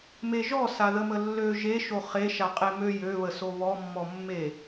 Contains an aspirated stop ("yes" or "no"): no